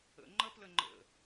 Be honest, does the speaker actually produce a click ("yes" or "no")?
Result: yes